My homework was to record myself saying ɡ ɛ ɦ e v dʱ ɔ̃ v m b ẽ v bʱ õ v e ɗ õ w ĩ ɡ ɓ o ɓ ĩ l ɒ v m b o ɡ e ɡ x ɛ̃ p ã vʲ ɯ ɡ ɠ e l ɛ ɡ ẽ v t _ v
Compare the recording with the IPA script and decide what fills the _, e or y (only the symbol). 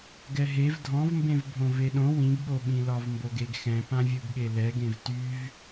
y